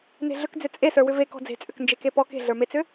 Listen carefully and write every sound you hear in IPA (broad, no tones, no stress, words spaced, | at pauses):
ne̤ɮʏkd͡zʏ t͡sʼesə˞wʏ ve kɔ̤d͡ze̤t͡sʼʏk nd͡ʒekepɔ ke̤ɮə˞met͡sʏ